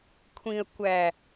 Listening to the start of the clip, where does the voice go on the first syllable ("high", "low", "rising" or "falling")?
low